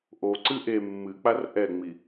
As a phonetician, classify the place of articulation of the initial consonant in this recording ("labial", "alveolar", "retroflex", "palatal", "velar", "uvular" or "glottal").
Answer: glottal